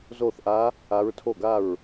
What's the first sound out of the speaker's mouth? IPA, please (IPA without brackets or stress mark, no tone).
z